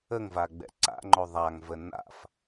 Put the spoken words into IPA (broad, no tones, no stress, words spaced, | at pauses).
əŋvaɡ͡bɛ̰ ǀa̰ŋ͡ǃo ðˤaŋvə na̰f